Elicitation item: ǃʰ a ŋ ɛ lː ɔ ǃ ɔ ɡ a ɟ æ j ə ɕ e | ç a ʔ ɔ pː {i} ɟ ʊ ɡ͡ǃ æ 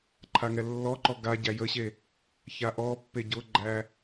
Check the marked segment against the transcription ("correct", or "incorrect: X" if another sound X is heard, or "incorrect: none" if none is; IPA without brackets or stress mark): incorrect: e